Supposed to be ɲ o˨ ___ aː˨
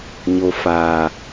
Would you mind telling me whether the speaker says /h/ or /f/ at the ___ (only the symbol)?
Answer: f